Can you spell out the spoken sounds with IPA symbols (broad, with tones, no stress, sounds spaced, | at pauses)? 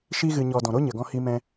ʃ i˧ ɣ ɨ˨ ɲ ɔ˨ d ɔ̃˨ ɾ o˦ ɲ ə˨ ɡ ɔ̃˧ h i˧ m ɛ̃˧